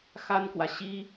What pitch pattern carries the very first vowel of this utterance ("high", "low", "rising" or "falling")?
high